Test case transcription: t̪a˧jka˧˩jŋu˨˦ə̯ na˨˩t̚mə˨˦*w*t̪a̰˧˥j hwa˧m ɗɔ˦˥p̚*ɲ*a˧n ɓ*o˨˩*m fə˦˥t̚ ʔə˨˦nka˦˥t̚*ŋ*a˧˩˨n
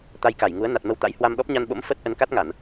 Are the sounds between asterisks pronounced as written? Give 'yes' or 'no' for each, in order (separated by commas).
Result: yes, yes, no, yes